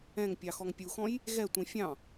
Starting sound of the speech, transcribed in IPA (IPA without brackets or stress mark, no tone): ɛ̃